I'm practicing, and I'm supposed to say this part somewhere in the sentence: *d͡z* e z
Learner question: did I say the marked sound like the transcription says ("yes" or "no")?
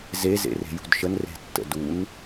no